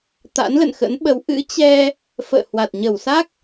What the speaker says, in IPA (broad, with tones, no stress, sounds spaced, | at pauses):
t̪ a̰˧˥ n l ə̰˧˨ n x ə̰˧˥ n ɓ ə˨˦ w ʔ ɨ̰˧˥ t͡ɕ ɛ˧ | f ə̰ː˧˨ h w a˨˩ t̚ ɲ ə˧˩ w s a˦˥ k̚